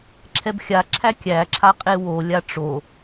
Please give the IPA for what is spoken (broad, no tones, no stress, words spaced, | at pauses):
ǁʰɛbxʲa ǁʰækʲæǁʰaqʼe wolʲa ʈ͡ʂo